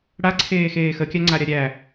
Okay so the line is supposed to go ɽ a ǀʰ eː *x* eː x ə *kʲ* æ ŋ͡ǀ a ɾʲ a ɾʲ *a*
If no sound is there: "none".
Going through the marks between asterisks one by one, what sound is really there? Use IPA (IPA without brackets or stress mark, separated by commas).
x, kʲ, æ